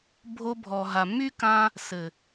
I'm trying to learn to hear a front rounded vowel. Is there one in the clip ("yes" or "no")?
yes